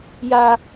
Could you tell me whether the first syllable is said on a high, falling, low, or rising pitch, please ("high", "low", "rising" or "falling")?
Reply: high